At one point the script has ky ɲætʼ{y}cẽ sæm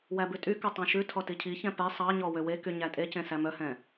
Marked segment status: incorrect: e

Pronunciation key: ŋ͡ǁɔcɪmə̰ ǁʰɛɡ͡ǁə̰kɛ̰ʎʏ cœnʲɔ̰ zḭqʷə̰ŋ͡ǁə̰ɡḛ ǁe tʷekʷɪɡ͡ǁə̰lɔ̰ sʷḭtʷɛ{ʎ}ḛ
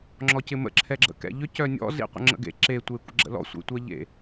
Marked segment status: correct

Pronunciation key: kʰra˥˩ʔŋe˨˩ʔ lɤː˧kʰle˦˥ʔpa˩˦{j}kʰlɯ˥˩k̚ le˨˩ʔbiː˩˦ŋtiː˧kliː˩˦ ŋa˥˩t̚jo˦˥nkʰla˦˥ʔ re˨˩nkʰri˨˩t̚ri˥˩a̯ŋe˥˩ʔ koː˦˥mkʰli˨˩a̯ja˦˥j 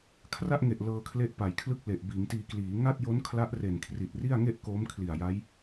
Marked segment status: correct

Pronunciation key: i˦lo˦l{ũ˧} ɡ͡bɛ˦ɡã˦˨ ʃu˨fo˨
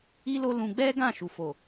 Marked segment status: correct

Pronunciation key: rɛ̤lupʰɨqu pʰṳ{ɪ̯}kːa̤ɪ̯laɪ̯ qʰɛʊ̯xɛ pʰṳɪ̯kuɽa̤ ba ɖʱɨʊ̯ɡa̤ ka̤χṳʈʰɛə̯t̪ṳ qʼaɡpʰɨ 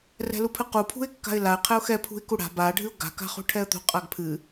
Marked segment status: correct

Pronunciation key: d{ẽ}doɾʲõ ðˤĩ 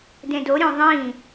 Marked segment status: correct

